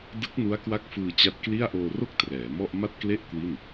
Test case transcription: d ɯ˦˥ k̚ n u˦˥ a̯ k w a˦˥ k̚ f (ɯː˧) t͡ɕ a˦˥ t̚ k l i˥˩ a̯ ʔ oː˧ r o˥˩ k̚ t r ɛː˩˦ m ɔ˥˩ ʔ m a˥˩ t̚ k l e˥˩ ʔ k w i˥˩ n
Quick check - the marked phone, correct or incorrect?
correct